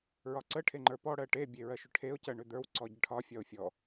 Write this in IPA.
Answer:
ɹ ɒ ǀ ə ʈʰ e ŋ͡ǃ ə˞ p ɔ ɽ ɜ ʈ e bʲ e ɹ ɜ ʃ ʏ ʈʰ e ʊ̯ c ɜ ɳ ʏ d̪ ə˞ w ǀ ɔ ɟ ə ʈʰ ɒ fʲ ɒ ʊ̯ fʲ ɔ

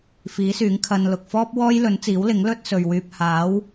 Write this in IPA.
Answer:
f iː˨˥ s yː˨˥ ŋ kʰ ɐ˧ n l ʊ˨ k̚ f ɔː˥ p̚ w ɔː˥ j l ɵ˨˥ n t͡s iː˨˥ w l ɪ˨˥ ŋ l ɵ˥ t̚ s ɵ˨ ɥ w yː˧ p̚ h aː˨˥ w

